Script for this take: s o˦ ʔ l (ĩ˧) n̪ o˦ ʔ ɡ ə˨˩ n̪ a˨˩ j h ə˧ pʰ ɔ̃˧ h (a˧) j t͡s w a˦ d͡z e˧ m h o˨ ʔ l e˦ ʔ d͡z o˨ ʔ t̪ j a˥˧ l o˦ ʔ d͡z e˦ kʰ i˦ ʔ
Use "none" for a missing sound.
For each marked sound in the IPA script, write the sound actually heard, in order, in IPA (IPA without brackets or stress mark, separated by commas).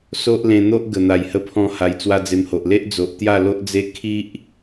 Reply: ẽ˧, a˧